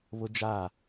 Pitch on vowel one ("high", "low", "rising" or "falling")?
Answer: high